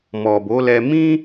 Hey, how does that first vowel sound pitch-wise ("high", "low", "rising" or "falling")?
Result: low